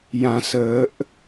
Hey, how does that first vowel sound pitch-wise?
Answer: low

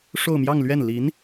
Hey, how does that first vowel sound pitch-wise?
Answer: falling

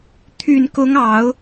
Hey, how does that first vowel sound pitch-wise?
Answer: low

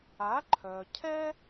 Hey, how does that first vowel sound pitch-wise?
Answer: rising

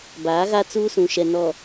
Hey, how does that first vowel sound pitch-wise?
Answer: rising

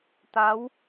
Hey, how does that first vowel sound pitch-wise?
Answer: rising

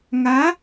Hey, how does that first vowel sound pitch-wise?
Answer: rising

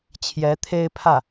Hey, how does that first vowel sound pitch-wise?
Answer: rising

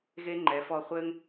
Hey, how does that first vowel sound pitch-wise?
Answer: high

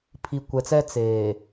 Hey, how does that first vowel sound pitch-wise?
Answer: low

